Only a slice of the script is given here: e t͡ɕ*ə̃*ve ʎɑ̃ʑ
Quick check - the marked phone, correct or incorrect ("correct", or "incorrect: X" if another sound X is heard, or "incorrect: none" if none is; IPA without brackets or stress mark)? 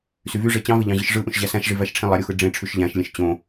incorrect: ɑ̃